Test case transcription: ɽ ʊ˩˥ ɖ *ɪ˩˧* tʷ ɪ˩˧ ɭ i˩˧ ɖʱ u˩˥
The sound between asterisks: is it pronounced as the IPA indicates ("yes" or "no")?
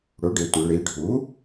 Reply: yes